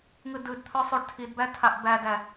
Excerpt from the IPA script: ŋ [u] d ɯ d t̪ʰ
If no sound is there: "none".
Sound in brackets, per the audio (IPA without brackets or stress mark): ɯ